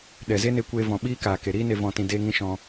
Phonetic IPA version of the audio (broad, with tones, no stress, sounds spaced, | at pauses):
ɗ ɛ˨ z e˦ n e˧ kʷ eː˧ v ɔ̃˨ ɓ iː˦ k aː˨ k e˨ ɾ iː˦ n e˧ v ɔ̃˧ t ĩ˧ d eː˦ ŋ ĩ˦ ʃ ɔ̃˧